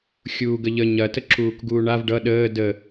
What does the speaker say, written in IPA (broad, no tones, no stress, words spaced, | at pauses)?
xʲuːɡəʎə ɲɐ təǁuːkɡuːɳav ɖʌ ɗəː də